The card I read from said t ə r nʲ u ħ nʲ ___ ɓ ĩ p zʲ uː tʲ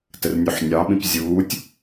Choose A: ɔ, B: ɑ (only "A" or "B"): B